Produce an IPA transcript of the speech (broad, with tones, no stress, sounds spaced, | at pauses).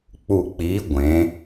k͡p u˧˩ k͡p i˨˥ ɡʷ ẽ˩˧